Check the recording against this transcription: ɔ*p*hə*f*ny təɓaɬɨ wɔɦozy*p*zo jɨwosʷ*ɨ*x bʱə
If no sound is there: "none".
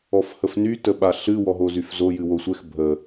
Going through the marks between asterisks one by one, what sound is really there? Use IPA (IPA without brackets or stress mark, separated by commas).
f, f, f, ɛ